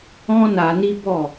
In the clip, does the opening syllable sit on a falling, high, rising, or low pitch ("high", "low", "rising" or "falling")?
high